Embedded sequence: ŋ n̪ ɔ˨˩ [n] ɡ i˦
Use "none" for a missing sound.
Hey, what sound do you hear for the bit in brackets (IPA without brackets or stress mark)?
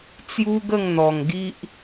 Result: ŋ